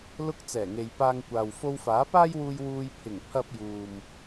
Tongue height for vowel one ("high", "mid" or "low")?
high